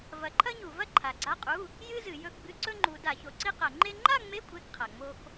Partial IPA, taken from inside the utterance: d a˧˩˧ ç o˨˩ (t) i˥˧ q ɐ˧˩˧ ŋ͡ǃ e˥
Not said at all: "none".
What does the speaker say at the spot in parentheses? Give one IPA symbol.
ǀ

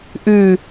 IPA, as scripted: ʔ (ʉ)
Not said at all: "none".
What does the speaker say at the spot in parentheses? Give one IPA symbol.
ʉ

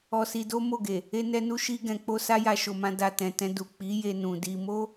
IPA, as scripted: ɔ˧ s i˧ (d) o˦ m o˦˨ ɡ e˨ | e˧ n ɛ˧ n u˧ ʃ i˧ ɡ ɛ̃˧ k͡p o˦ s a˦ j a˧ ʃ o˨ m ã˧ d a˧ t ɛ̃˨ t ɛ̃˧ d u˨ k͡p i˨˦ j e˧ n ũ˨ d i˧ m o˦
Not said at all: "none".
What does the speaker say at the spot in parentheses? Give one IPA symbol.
d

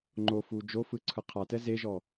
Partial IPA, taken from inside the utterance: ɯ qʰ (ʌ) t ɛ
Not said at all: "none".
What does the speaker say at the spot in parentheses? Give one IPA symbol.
a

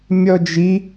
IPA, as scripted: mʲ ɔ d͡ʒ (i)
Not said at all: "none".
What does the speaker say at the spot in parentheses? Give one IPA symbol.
i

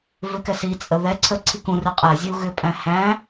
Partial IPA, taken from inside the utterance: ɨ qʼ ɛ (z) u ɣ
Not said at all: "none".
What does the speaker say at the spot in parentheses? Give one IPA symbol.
zʲ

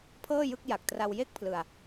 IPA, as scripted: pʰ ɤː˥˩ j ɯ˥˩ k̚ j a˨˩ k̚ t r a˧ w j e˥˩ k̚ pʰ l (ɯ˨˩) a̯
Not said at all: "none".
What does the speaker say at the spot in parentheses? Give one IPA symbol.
ɯ˧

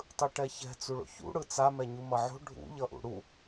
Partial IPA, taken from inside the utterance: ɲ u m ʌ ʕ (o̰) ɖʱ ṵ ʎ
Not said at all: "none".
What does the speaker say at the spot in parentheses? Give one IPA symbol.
o̤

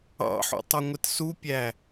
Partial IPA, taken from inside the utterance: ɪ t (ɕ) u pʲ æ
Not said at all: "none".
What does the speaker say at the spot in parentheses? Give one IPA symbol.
s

